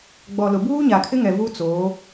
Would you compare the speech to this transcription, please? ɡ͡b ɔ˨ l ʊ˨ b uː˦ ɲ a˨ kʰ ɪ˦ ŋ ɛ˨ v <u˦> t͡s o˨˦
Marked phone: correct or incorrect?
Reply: correct